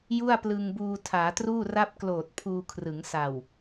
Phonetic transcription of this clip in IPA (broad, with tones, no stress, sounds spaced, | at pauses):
j u˥˩ a̯ p l ɯ˧ ŋ b uː˧ tʰ aː˩˦ t r uː˥˩ r a˥˩ p̚ k l oː˨˩ t̚ pʰ uː˧ kʰ r ɯ˩˦ ŋ s a˨˩ w